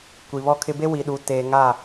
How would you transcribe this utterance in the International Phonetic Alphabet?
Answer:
kʷ i˨ β ɔ˦ kʰ ɪ˦ b e˦ w i˨ ɗ u˨ t eː˨ ŋ a˦˨

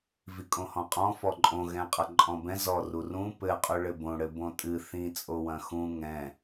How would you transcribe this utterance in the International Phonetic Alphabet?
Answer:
v i kʼ õ h ɔ̃ qʼ ɔ̃ f ɔ ǃʼ õ ɣ ɛ̃ qʼ ɐ ǃʼ ɔ̃ b ɛ̃ z ɔ r u r ũ p ɘ qʼ o ɭ ɘ b õ ɽ ɘ b õ tʼ ɨ θ ĩ t͡sʼ o w ɐ̃ x ũ ŋ ɛ̃

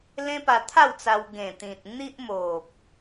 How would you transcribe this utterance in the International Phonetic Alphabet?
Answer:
l ẽ˦ p a˧ t̪ʰ a˥˧ w t͡s a˧ w ɡ ẽ˨˩ t̪ ĩ˨ t̚ n̪ i˦ ʔ m o˨ p̚

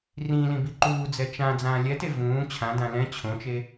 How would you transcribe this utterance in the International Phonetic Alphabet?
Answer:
r ĩ l ĩ b i ǃ uː d͡z ɛ t͡ʃ ã d͡z ãː lʲ ɛ t e v ũː t͡ɕʰ ã d ã l ɛ̃ t͡ɕʰ õ t͡ʃ e

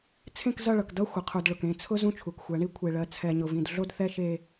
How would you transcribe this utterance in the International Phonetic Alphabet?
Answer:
t͡sʰ ẽ˦˨ k z ʌ˦˨ ɭ ʌ˨ k d ʌ˦ xʷ ə˨ qʰ u˨ d ɭ ʊ˨ k ẽ˦˨ t͡sʰ ʊ˦ z ũ˦ t͡ʃʰ u˨ k xʷ ɜ˨˦ ɳ i˦ kʷʰ e˨ ɭ ɜ˨ t͡sʰ ɛ˨ ɲ ʊ˨ v ĩ˨ d ɮ o˦ d θ ɛ˦ ʃ e˦

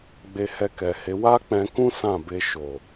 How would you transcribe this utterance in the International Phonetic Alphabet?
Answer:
ɡ͡b e˧ h ɛ˧ k ɛ˨ h e˨˦ w a˦ k͡p ɛ̃˧ k ũ˦ s ã˦˨ b e˧ ʃ o˨

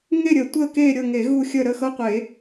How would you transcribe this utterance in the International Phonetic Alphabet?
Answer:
ŋ e˦˨ ɾʲ ə˨˩˦ tʷ ə˦˨ k e˦˨ ɾʲ ɤ˦˨ ŋ e˨˩˦ ɣ u˦˨ xʲ ə˦˨ ɾ ə˦˨ x ɤ˦˨ qʷ e˨˩˦

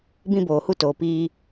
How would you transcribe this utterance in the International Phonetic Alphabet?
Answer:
b ĩ˧ b oː˨ h u˧ t oː˨ p iː˧

